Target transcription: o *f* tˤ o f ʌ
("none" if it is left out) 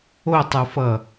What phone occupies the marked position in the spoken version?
none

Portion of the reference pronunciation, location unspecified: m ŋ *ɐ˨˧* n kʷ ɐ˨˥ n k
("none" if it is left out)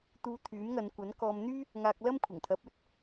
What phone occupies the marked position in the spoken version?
ɐ˨˧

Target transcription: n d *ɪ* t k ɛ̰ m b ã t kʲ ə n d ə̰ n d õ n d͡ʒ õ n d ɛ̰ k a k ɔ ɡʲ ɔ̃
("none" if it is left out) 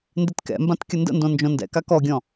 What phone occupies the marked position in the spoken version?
ɪ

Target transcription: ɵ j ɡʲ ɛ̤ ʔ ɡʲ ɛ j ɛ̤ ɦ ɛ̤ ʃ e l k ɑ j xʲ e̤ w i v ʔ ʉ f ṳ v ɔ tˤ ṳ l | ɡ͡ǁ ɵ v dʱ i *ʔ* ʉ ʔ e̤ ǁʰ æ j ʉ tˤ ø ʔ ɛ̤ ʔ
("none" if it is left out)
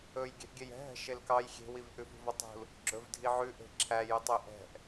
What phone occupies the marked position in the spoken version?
ʕ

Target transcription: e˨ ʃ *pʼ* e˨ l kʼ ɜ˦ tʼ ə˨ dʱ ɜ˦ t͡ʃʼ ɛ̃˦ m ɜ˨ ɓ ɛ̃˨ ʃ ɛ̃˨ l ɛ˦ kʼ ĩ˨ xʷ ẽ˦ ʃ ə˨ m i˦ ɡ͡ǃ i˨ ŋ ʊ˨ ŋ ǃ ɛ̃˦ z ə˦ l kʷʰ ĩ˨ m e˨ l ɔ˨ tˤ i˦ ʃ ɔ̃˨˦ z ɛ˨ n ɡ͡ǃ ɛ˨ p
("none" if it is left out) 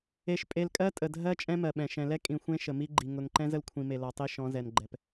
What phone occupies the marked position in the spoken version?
pʼ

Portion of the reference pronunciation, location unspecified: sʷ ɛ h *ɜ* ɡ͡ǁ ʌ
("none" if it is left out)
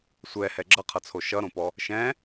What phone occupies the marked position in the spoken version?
ɛ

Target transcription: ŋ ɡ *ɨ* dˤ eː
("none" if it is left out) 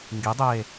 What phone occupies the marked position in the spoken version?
i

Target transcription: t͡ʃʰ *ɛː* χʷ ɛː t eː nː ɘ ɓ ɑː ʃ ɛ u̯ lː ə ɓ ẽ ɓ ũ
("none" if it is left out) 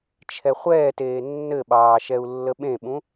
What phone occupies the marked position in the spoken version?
ɛ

